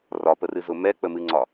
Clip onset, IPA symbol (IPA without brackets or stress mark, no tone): r